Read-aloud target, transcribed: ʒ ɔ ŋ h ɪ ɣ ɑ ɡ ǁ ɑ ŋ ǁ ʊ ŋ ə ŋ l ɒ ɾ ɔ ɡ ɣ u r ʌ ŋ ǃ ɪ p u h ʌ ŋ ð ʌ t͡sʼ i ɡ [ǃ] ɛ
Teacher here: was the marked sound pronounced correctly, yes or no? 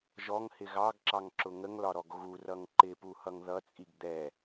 no